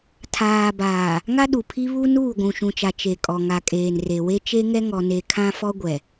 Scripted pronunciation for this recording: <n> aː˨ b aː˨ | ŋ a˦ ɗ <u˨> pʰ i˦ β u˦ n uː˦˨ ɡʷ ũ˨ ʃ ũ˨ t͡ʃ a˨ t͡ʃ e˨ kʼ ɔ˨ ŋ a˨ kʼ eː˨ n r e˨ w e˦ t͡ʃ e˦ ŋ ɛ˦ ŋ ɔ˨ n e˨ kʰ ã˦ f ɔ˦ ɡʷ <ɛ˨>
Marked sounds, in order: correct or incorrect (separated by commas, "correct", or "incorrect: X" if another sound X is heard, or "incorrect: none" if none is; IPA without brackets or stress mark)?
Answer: incorrect: tʰ, correct, correct